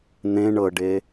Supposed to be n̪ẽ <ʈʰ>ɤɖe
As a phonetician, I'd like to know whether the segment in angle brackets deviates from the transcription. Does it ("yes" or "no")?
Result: yes